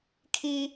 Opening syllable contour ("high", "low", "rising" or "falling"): high